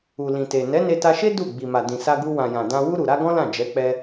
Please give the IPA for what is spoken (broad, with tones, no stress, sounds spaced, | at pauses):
u˨ l ĩ˨ t e˨ n ɛ˨˦ n e˧ t a˧ ʃ e˦ d u˦˨ ɡ͡b i˨ m a˨ d ĩ˨ s a˧ ɡ u˧ w ã˨ j ã˨ d ã˧ w u˧ ɾ u˨ ɾ a˧ ɡ ɔ̃˦ l ã˦˨ d͡ʒ ɛ˨˦ k͡p ɛ˧